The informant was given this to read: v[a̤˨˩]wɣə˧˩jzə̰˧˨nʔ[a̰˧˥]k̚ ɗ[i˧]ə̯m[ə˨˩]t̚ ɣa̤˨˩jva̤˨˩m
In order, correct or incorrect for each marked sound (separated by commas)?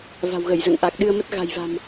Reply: correct, incorrect, incorrect, incorrect